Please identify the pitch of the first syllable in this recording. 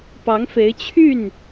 rising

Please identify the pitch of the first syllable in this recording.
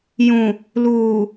low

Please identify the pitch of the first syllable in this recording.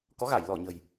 rising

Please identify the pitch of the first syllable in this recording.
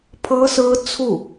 high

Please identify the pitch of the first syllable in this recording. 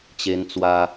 high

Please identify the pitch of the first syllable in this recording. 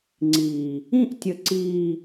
low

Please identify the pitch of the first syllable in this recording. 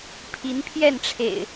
rising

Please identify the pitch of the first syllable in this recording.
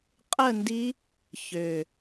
falling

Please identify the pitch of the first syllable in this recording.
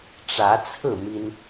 rising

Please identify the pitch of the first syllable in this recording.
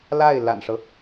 falling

